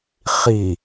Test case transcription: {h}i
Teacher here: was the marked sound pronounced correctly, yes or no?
no